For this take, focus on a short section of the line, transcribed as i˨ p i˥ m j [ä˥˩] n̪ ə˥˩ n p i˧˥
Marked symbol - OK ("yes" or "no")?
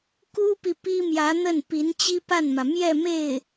no